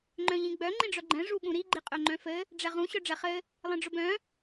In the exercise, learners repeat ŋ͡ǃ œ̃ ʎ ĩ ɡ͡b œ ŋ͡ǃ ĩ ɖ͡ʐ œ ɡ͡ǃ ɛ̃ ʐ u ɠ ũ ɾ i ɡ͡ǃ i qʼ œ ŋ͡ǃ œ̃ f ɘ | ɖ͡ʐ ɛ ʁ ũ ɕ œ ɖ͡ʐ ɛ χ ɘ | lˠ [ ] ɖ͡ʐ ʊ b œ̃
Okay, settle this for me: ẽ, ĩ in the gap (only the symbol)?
ĩ